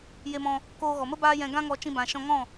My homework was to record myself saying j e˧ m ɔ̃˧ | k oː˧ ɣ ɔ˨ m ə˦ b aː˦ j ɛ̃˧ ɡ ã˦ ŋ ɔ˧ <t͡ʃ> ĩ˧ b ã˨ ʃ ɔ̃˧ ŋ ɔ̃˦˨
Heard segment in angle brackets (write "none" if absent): t͡ʃ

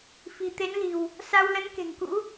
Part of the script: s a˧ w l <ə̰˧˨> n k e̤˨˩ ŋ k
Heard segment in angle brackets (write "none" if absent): ə˨˦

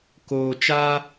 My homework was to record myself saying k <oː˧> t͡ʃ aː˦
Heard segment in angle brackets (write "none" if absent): oː˧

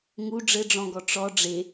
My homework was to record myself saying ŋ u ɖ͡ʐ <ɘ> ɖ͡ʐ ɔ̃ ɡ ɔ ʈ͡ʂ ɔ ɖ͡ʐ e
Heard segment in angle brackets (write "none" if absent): ɘ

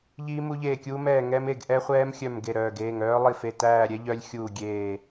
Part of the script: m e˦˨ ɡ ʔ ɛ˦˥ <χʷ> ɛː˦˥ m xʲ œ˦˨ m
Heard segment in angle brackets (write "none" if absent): χʷ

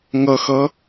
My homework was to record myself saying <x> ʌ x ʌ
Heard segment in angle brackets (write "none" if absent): ŋ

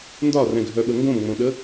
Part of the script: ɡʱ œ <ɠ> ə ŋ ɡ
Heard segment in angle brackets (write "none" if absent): ɓ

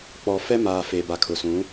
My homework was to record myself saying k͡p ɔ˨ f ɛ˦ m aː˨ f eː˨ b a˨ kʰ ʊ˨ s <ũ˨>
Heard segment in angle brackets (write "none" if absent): ũ˨˦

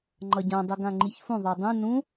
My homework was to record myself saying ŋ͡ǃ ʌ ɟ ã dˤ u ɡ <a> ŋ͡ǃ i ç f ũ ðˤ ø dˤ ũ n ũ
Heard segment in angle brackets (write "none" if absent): ã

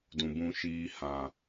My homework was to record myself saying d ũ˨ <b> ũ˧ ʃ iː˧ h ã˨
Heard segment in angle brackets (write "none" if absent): b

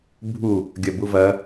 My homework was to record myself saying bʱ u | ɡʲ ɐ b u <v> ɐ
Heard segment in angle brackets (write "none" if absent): v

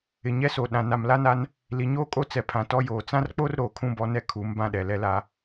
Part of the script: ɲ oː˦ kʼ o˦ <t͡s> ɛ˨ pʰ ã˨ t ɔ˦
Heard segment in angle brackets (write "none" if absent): t͡s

